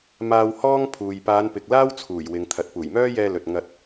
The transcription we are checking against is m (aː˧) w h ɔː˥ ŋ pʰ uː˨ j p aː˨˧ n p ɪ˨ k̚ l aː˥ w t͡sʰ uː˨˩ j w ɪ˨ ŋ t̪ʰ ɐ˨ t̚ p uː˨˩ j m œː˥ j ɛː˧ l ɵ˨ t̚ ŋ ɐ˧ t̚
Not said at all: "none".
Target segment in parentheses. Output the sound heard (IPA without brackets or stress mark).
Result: aː˧